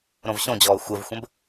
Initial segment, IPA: ɾ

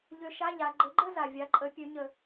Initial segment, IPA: ʎ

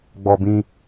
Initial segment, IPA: ɡ͡b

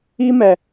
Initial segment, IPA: i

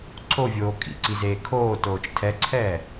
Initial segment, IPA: ǀʰ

